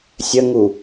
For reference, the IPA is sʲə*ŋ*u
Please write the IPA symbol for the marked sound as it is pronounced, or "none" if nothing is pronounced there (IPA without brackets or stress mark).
ŋ